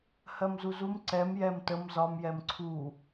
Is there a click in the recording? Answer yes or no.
yes